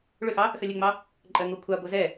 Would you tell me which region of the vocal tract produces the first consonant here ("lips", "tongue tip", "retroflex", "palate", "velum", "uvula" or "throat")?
retroflex